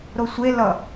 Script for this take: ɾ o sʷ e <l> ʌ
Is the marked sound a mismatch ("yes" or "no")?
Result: no